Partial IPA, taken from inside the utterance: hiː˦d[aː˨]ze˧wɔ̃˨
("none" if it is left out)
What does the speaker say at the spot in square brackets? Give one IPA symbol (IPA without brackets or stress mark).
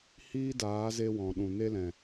aː˨˦